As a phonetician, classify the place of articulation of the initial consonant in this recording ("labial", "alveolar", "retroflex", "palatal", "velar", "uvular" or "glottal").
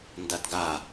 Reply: alveolar